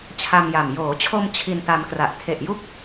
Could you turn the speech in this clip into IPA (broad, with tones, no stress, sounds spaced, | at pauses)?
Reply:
t͡ɕʰ a˧ m j a˨˩ m j oː˩˦ t͡ɕʰ o˧ m t͡ɕʰ i˧ n t a˧ m k r a˨˩ ʔ tʰ e˨˩ ʔ j u˦˥ k̚